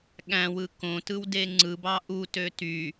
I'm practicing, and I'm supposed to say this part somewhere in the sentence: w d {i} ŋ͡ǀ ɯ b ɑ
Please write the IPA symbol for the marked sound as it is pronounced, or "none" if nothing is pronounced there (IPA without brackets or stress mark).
e